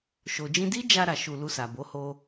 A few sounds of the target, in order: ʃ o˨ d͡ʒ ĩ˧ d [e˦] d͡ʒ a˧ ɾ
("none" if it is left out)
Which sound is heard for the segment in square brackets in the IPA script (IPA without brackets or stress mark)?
i˦